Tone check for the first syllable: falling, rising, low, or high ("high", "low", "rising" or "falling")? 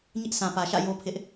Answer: high